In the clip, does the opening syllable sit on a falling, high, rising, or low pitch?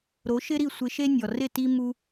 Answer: rising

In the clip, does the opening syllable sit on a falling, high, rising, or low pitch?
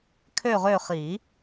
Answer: falling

